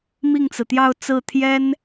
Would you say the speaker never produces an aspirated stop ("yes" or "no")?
no